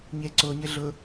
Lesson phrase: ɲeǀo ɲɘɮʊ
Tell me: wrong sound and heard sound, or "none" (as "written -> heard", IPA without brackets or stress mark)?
none